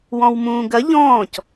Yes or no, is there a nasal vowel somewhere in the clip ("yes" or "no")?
yes